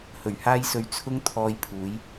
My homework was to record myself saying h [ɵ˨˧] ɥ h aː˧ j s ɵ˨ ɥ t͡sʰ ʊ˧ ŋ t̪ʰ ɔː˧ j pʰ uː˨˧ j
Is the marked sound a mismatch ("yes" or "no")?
yes